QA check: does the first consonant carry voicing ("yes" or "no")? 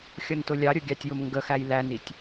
no